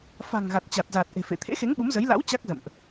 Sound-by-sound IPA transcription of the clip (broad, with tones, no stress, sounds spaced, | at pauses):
f a̤˨˩ ŋ ɣ a˨˩ t̚ t͡ɕ a˨˩ t̚ z aː˨˩ t̚ ʔ e̤˨˩ f ḛ˧˨ t̪ʰ ḛ˧˥ x e˨˦ ŋ ɓ u˨˦ m z ə˨˦ j l a̰˧˥ w t͡ɕ a˦˥ k̚ z ə̰˧˨ m ʔ